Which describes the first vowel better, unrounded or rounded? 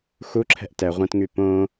rounded